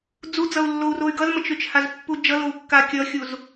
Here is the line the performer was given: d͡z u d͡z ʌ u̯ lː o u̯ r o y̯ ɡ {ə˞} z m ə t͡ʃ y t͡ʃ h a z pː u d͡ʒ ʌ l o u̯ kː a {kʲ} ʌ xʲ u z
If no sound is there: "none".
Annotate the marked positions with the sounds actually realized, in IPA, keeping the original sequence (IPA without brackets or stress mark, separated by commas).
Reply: ʌ, kʲ